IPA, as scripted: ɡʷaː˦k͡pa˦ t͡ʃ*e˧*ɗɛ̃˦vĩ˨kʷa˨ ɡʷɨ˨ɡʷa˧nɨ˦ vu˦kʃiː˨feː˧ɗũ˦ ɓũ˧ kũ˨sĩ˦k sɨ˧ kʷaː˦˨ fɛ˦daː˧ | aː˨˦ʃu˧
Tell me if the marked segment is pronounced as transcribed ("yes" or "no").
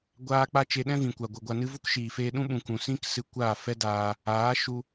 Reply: yes